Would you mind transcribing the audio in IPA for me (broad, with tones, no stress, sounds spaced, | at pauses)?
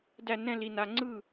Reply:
d æ˥˩ n ɛ̃˥˧ l i˩˧˩ n a˩˧˩ ŋ͡ǀ ɯ˥˩